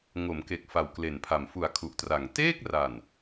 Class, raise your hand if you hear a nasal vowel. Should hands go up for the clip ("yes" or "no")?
no